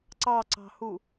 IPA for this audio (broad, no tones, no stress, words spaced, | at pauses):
ǀɑǀɑ̤hu